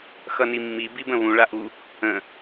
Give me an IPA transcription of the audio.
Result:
x ʌ n i mː i b i b ə̃ β ũ ɭ a ʔ u | ə̃

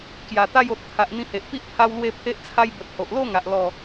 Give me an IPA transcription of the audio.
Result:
k j a˨˩ t̪ a˥˧ j o˨ t̚ t̪ʰ a˨ ʔ n̪ ĩ˧ h e˨ ʔ p i˦ ʔ pʰ a˦ w l w e˥˧ pʰ e˦ ʔ t͡sʰ a˦ j b ə˨ t̚ h o˨ ʔ l o˥˧ ŋ a˨ ʔ l ɔ˥˧

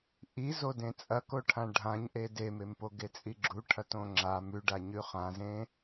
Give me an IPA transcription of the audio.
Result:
ʔ i z o d ẽ t͡sʼ ɐ k o ʈʰ ã ɖʱ ã ɲ ʔ e d e m e m p o ɡ e t͡sʼ i ɡ͡ǁ u ʈʰ ɐ t õ ŋ͡ǁ a m ʉ ɖ a ɲ ʉ χ ã z ẽ

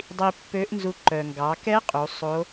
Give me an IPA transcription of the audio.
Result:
dˤ i˧ pː ø˧˥ ʔ n z u˧ ǃ œ˩ ŋ ɡ ɑ˩˧ k ɛ˧˥ qʼ u˩˧ sˤ o˧˥

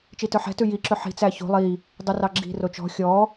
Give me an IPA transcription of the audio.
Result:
t͡ʃ i t œ ħ ɛ̤ t ʉ j i ǁ ɵ ħ i̤ t͡s æ ç o̤ lˠ i | dˤ ʉ r ɑ ɡ͡ǁ i̤ r o t͡ʃ ɔ̤ xʲ ɔ

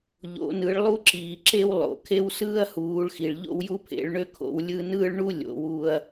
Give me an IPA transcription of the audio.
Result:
ʎ o̰˩˧ n ɯ˩˧ ɭ lˠ u˦ ǁ iː˩ ǁ e˦ w lˠ o̰˩ kʰ e˦ w s ɯː˦ ɐ̯ h uː˩˧ ɭ x i˩ ɭ ʎ o̰˦ w j u˦ pʰ ḛ˩˧ ɭ ɳ ø˦ kʰ o̰˩˧ w lʲ ɯ˦ n ɯː˦ ɭ ɳ u˦ lʲ o̰˩˧ w uː˦ ɐ̯

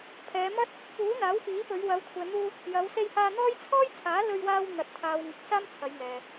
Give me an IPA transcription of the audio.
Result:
pʰ ɛː˨˧ m ɐ˥ t̚ | p uː˨˥ n̪ aː˨˥ w f iː˨˥ p ɵ˨˧ ɥ w ɐ˨˧ w kʷʰ ɛː˨ n̪ uː˧ | j ɐ˨˧ w s e˧ j h aː˧ n̪ ɔː˥ j t͡sʰ ɔː˥ j t͡sʰ aː˨˥ l ɵ˧ ɥ w aː˧ w n̪ ɐ˨ t̚ t̪ʰ aː˨ w ŋ ɪ˨ k̚ s aː˥ m t͡sʰ ɐ˨˧ j ŋ ɛː˨

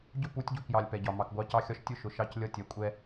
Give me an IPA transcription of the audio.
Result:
ɟ ʊ˦ p u˨˦ tʲ ɟ u˨ k j ɑ˨ lʲ p ɛ˨ ɟ ɒ˨ m ɑ˨ k ɡʷ ɑ˦ c ɑ˦ xʲ ɒ˦ ʃ tʲ ʊ˦ ʃ ʊ˨ ʃ ɑ˦ c lʲ ʌ˦ tʲ ɛ˨ kʷʼ ɛ˦

